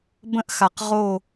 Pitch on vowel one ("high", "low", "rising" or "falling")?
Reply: high